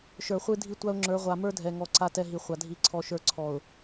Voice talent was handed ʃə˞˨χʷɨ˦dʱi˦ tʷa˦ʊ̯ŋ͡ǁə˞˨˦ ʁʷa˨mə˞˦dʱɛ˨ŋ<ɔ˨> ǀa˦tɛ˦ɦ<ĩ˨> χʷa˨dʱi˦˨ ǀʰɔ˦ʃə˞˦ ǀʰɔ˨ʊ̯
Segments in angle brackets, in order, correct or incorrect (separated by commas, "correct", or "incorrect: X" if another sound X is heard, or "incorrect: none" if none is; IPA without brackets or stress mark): correct, incorrect: i˨